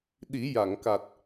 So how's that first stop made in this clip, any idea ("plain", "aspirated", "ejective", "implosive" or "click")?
implosive